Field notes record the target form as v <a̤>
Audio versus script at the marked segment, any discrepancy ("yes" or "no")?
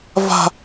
no